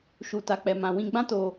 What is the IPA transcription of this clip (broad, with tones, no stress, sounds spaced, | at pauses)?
ʃ u˨ t a˨ k͡p ɛ˨ m ã˨ w ĩ˧ ɡ͡b ã˦ t o˧